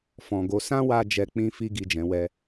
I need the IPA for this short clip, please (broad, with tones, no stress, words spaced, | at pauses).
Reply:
fɔ̃˨ɡo˨˦ sã˦wa˧ d͡ʒɛ˧k͡pĩ˦fi˦ ɡi˦˨d͡ʒɛ̃˨˦wɛ˦